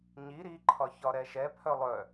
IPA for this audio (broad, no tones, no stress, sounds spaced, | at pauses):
ɲ i ɾ i ǃʰ ɒ ç ɒ ɾ ɛ ʃ ɛ pʰ œ lˠ œ